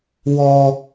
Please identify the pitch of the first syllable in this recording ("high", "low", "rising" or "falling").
high